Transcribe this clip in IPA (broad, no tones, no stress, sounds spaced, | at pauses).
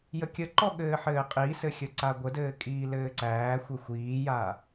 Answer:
j ə kʲ ə ǃ ɔ ɠ ɘː ħ ɘː qʼ i s ɘ xʲ ə ǀ a ɡʷ ə d ɘː kʼ iː l ɘː ǀ æː xʷ ɘ xʷ iː j a